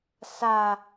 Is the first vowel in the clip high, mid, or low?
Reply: low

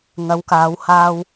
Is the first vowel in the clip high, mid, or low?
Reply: low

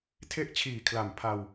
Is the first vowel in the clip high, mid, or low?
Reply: mid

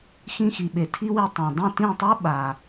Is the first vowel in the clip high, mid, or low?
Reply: high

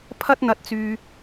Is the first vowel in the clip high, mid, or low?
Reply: low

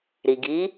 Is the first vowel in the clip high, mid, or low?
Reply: high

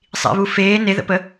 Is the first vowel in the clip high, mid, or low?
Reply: high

